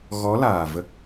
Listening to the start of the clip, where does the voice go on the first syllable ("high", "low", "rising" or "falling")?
rising